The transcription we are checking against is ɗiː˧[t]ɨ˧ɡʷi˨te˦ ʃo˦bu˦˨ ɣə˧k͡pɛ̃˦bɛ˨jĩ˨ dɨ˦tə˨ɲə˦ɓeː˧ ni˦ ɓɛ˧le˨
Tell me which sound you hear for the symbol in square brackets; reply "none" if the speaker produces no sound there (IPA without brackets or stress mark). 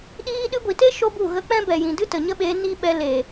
ɗ